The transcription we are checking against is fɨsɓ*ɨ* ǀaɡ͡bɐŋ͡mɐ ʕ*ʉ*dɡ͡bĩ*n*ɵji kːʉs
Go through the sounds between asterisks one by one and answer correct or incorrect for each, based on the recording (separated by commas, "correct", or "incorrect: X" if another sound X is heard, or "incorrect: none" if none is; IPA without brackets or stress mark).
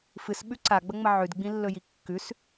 incorrect: ʉ, correct, incorrect: lː